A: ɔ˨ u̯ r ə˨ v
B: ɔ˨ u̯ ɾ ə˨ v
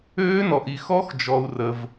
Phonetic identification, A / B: A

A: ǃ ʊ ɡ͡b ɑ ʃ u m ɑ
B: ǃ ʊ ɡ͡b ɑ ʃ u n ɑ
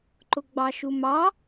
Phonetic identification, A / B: A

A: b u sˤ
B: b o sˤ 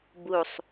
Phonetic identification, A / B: A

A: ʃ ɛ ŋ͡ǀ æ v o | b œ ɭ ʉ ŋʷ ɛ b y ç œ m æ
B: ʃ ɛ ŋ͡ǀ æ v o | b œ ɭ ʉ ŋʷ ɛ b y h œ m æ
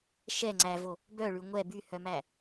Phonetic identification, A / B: B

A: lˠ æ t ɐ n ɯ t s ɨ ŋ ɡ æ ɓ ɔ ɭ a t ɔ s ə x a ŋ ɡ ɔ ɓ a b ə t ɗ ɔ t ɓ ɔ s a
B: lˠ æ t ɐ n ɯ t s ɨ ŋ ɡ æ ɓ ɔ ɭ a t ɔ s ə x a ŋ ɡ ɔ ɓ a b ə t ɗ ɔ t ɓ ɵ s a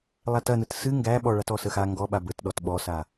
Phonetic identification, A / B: A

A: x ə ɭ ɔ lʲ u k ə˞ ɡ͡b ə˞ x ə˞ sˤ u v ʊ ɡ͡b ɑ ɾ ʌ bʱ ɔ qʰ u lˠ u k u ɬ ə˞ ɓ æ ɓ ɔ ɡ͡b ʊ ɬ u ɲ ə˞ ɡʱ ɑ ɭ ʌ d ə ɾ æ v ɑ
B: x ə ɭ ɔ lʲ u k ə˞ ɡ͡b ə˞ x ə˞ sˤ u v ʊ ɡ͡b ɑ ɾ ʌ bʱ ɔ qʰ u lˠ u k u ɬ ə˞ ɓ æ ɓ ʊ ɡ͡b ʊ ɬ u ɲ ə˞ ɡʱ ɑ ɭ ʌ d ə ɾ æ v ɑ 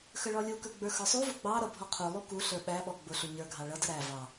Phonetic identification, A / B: A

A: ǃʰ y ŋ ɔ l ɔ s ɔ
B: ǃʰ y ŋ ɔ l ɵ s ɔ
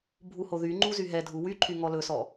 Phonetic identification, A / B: B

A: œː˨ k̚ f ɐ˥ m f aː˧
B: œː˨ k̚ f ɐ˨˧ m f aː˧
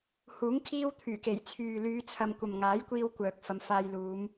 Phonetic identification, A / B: B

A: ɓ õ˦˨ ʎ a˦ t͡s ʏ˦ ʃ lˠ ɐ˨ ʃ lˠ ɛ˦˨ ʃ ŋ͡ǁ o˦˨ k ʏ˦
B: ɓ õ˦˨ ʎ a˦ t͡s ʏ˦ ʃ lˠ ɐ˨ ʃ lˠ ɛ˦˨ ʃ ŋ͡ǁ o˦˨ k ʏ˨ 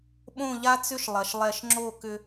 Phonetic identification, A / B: A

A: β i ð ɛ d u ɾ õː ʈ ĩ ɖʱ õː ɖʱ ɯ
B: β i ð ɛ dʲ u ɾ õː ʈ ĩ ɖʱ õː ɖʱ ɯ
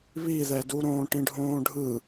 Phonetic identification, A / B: A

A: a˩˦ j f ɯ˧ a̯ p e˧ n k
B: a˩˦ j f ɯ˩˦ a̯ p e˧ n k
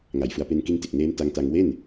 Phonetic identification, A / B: B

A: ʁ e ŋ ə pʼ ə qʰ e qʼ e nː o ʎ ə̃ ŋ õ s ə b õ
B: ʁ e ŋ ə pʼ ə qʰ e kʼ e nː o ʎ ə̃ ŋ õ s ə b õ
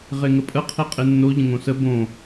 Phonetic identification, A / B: A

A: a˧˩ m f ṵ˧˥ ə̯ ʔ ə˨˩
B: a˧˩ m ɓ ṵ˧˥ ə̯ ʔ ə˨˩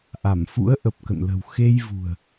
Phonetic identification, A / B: A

